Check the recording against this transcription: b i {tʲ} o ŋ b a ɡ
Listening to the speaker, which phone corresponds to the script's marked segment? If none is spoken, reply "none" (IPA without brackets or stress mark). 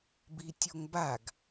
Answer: tʲ